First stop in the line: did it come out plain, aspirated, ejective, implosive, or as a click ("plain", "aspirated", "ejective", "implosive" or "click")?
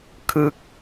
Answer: aspirated